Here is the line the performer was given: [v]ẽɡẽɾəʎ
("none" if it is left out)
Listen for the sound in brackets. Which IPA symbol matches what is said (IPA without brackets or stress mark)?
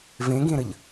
v